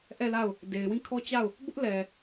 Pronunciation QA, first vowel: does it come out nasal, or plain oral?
oral